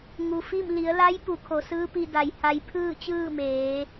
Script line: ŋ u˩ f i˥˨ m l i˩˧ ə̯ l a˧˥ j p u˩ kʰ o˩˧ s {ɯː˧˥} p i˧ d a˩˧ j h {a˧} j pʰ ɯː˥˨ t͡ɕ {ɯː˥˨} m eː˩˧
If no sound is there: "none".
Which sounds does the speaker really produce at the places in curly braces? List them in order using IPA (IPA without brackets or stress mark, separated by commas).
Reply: ɯː˧˥, a˧, ɯː˥˨